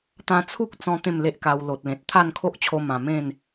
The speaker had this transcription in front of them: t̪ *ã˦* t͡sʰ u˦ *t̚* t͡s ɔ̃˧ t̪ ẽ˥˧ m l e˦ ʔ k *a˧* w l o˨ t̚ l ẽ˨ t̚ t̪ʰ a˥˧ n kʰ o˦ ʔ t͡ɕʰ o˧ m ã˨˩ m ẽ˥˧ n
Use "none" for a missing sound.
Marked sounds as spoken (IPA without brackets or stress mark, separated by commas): ã˦, k̚, a˧